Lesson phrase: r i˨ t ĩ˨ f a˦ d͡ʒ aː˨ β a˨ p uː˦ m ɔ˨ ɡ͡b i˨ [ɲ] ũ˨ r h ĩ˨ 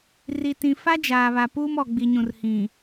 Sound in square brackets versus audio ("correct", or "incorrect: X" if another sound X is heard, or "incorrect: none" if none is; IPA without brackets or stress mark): correct